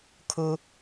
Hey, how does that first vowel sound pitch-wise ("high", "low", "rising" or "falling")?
high